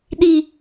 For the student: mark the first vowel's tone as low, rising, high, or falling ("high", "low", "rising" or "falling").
low